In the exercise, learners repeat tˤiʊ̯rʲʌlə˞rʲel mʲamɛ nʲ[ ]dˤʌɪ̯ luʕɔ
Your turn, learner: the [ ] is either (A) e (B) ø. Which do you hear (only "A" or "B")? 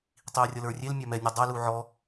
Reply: A